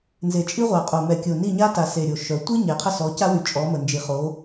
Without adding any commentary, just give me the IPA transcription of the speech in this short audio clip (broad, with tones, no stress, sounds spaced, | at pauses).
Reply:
n z e˨ t͡ʃʼ i˦ ʁʷ a˨ qʼ o˨ m ɛ˨ kʲ o˨ n i˦˨ ɲ a˦ t a˨ s e˨ ɾʲ o˨ ʃ œ˨˦ tʷ i˦ ɲ e˨ qʰ ə˦ s ɔ˨˦ c a˦ w y˨ t͡ʃʼ ɔ˨˦ m ə˨ n d͡ʒ i˨ χ o˨˦